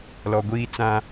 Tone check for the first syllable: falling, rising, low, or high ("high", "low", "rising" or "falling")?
low